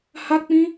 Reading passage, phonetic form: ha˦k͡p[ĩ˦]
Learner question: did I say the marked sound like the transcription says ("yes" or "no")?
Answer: yes